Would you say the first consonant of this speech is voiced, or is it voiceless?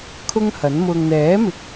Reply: voiceless